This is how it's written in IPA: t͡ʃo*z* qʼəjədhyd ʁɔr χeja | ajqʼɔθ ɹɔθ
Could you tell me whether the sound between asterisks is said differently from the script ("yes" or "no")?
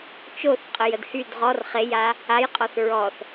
yes